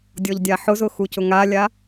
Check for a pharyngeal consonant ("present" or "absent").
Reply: present